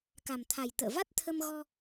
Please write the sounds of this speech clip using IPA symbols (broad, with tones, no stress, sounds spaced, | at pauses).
k a˨˩ m t̪ʰ a˨˩ j t̪ ə̰ː˧˨ v a˦˥ t̚ t̪ʰ ə˧ m ɣ ɔ˧